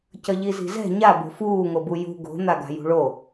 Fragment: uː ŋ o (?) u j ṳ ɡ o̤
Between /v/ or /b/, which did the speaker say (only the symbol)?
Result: b